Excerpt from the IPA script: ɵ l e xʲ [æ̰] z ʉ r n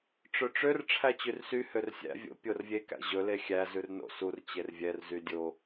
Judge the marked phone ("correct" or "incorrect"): incorrect